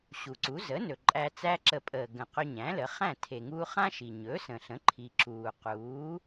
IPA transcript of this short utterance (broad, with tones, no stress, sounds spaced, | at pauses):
ɕ u˩ ǀ u˩˥ z ə˩˥ n ɵ˩ ǃʼ æ˧ t͡s æ˥ ǁ ə˧ pʼ əː˩ ɡ ə̃˩ q ɵ˧ ɲ æ̃˩˥ l ə˩˥ χ æ̃˥˩ tʰ e˩ ŋ uː˧ χ ã˥ ʃ i˩ ɲ ɵ˩˥ s ə̃˩ ɬ ə̃˩˥ ǃʰ i˩ ǁ uː˩ q uː˩˥